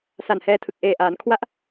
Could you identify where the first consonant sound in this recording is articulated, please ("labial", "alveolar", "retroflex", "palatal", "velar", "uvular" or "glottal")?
alveolar